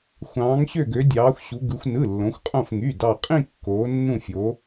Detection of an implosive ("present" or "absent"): absent